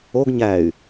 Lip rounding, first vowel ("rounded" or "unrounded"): rounded